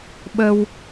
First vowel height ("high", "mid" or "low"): mid